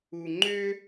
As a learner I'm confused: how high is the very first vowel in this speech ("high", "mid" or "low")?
high